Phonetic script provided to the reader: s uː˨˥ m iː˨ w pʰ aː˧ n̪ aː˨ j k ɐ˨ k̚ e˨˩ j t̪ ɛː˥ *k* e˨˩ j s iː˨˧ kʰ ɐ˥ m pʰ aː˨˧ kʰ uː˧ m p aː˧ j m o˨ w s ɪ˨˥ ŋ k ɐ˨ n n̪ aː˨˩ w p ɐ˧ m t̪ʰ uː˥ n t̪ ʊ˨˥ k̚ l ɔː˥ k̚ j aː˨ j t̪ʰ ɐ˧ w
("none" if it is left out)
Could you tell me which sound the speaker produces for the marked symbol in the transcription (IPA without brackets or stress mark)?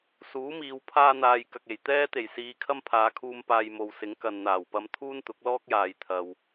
t̪